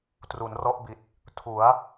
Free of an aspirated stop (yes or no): no